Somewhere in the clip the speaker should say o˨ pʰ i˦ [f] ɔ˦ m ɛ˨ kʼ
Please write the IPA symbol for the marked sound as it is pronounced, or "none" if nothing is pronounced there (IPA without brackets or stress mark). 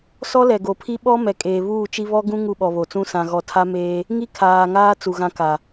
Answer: ɓ